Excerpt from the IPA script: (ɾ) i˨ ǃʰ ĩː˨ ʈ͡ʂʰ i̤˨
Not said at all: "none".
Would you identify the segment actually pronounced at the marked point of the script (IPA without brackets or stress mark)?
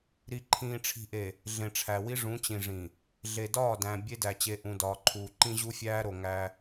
ɾ